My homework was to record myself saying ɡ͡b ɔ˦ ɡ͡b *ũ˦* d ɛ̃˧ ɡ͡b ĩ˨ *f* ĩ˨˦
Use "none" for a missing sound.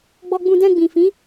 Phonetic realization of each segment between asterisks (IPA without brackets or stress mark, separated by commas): ũ˧, f